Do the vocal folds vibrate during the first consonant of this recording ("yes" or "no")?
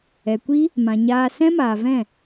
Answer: no